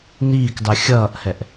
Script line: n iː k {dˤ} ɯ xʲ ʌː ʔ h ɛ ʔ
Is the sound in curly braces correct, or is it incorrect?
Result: correct